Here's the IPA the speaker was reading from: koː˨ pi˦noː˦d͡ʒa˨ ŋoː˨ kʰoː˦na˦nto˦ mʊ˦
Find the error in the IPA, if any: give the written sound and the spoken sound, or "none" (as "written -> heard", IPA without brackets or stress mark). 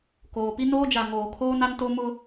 none